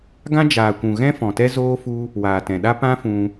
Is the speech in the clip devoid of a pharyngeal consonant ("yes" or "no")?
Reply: yes